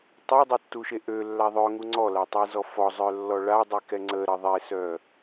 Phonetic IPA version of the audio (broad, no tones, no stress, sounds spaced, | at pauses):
tˤ a dˤ e tː u ʃ e ʔ ø lː a ðˤ œ ŋ u ŋ͡ǀ ɔ l a tˤ i z ɔ f ɔ zˤ œ lː ɔ ɭ a dˤ i k ɛ ŋ͡ǀ ə ɾ ə ðˤ e s œ